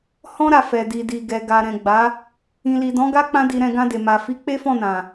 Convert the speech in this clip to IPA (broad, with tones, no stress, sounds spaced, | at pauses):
h ɔ̃˦ ɾ a˧ f ɛ˨ d i˨ d i˨ ɡ ɛ˨ ɡ a˨ ɾ ɛ̃˨ ɡ͡b a˨˦ | ĩ˨ l i˨ d ɔ̃˨˦ ɡ a˦ k͡p ã˦ d i˧ ɾ ɛ̃˧ ɡ ã˧ d e˨ m a˨ f i˨˦ k͡p e˦ f ɔ̃˦˨ n ã˨